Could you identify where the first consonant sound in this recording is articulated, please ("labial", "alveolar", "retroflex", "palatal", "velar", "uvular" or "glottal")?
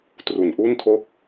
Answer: alveolar